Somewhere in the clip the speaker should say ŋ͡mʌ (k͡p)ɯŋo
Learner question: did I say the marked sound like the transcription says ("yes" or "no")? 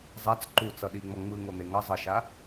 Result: no